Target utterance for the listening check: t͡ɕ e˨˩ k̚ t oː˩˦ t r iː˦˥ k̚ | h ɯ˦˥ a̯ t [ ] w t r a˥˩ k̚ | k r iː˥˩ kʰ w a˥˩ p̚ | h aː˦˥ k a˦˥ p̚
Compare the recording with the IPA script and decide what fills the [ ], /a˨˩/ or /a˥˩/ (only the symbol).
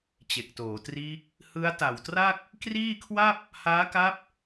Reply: a˨˩